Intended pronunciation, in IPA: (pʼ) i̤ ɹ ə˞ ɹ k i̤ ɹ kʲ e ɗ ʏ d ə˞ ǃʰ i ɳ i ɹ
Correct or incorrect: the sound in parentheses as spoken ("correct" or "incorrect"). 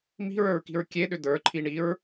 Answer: incorrect